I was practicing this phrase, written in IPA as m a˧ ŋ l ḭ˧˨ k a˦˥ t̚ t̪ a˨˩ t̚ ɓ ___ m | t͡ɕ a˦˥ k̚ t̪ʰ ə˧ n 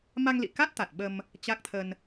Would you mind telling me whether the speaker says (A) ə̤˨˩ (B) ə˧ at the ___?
B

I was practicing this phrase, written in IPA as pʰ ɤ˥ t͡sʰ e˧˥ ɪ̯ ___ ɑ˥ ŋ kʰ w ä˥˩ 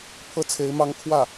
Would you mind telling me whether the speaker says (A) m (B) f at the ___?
A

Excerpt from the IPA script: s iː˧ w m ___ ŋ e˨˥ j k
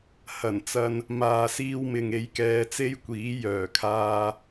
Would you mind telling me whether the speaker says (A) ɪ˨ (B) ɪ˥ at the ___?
A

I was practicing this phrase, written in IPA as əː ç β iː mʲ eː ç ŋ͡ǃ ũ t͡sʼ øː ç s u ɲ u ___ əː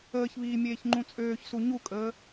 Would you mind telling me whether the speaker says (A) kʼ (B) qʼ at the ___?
A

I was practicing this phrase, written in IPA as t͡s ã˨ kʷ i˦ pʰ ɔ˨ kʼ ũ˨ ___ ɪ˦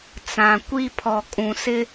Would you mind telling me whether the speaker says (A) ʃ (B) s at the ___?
B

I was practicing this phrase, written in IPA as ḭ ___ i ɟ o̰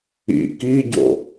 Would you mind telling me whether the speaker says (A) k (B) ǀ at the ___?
A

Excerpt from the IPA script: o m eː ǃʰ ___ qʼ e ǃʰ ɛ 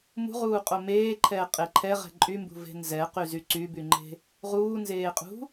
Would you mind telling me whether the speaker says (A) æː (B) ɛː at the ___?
B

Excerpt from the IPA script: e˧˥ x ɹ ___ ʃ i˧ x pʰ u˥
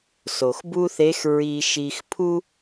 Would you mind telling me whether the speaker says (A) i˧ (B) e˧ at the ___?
A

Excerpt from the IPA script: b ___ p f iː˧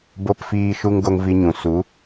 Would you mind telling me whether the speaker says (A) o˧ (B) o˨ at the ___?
A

